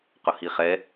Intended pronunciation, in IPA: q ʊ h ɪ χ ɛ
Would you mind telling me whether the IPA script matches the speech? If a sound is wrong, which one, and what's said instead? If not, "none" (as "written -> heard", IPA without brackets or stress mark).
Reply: ɪ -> i